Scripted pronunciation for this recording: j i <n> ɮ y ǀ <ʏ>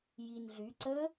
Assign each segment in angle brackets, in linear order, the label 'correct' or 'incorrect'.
correct, incorrect: ə

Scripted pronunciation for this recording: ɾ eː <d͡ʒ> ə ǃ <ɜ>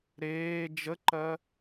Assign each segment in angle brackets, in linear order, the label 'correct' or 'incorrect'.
correct, correct

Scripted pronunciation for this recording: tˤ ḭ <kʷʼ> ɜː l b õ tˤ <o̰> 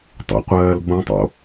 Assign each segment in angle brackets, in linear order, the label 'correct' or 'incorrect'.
incorrect: qʷ, correct

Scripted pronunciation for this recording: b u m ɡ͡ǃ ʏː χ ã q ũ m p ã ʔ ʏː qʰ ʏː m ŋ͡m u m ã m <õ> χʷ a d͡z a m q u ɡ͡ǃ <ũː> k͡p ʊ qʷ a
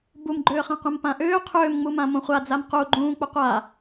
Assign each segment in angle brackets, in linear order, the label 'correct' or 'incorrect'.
correct, correct

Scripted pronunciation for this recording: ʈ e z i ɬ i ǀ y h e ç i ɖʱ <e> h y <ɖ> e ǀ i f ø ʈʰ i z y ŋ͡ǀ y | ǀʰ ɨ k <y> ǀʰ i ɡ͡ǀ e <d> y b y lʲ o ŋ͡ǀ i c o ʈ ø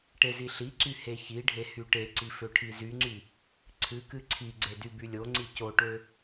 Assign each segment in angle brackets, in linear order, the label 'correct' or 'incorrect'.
correct, incorrect: ʈ, incorrect: ɨ, correct

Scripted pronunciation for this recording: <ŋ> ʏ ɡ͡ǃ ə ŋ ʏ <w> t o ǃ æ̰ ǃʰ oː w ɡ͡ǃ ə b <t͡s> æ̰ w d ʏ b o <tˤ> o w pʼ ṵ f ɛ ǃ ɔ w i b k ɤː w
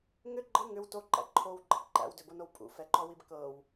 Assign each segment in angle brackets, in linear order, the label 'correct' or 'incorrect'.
correct, correct, incorrect: ǃ, incorrect: n

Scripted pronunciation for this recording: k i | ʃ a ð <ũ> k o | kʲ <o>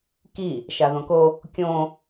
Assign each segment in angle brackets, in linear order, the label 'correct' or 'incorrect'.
incorrect: õ, incorrect: õ

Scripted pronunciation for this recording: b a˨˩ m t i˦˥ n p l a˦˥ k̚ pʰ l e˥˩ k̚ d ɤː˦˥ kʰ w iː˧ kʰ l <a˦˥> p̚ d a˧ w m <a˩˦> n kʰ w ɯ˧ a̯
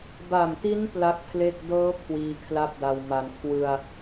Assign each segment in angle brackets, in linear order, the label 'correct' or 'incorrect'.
incorrect: a˥˩, correct

